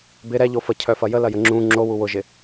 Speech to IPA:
b ɪ ɾ ɛ ʎ o f ə cʰ œ f ɐ j ə l ɐ j ə ŋ͡ǁ ũ ŋ͡ǁ o w u w ʊ ʒ ɪ

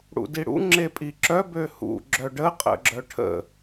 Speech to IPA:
ɽ ṵ d i ɽ ṵ ŋ͡ǁ e pʼ i ǁ œ b ø h ṵ ɡ͡ǁ œ ɖ ə qʼ ə̰ ɡ͡ǁ œ ʈʰ ə̰

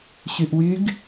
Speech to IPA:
ɕ y ʔ w y ɡ

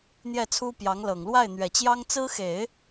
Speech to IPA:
n̪ j ɛ˥˩ t͡sʰ u˥ p j ɑ˧˥ ŋ l ɤ˨˩ ŋ l w a˥˩ ɪ̯ n̪ ɥ ɛ˨˩ t͡ɕ j ɑ˥ ŋ t͡s ɹ̩˥ x e˨˩˦ ɪ̯

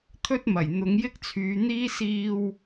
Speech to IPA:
t̪ʰ ɵ˥ t̚ m ɐ˨˩ j n̪ ʊ˨˧ ŋ j ɪ˥ k̚ t͡sʰ yː˨˧ n̪ iː˥ s iː˧ w

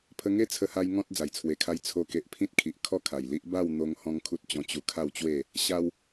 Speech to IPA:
pʰ ə˧ ŋ e˦ t͡sʰ ə˧ h a˧ j ŋ ɔ̃˦ t̚ d͡z a˨˩ j t͡sʰ w e˧ kʰ a˦ j t͡sʰ o˧ k e˨ ʔ pʰ ĩ˦ t̚ kʰ i˨ ʔ kʰ ɔ˥˧ kʰ a˨˩ j l i˦ ʔ b a˥˧ w n̪ o˦ ŋ h ɔ̃˦ ŋ kʰ u˦ t̚ t͡ɕ ɔ̃˧ t͡ɕ u˧ kʰ a˥˧ w t͡ɕ w e˥˧ | ɕ a˦ w

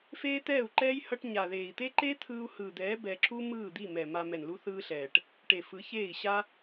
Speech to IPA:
f eː˦ t̪ ɛː˦˨ u̯ ǃ ɛː˦ j h ʌ˦ ʈ ɲ a˨ ð eː˨ i̯ t̪ e˦ ǃ e˦ t̪ʰ ɯː˧ u̯ h ɯː˨ d̪ ɛː˨˦ b ɛ˧ ǁ u˦ m ɯː˦˨ d̪ i˦˨ m ɛ˨ m a˧ m ɛ˨ n l u˧ θ ɯː˧ ɬ ɛː˨ ʈ | ʈ e˨ f ɯ˨˦ ç eː˦˨ i̯ ɕ a˦

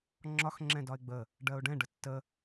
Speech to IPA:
ŋ͡ǁ ɒ x ŋ͡ǁ ɛ̃ d ɒ ɪ̯ ɡ͡b ə | ɖ ɜ ʊ̯ ɖ ɛ̃ ɖ ə tː ə

